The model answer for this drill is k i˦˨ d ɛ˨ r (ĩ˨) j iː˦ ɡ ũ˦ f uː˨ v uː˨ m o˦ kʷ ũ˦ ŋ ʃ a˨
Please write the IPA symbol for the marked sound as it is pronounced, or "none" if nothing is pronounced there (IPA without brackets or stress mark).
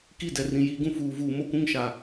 ĩ˨